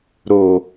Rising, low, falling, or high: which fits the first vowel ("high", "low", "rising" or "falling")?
low